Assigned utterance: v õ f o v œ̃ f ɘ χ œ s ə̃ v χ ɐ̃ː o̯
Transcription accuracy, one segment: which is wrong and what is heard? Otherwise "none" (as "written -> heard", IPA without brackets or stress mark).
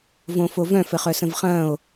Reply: none